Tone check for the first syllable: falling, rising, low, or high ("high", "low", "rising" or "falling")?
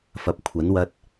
rising